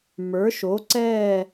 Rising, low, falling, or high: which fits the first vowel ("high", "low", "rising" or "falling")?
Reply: rising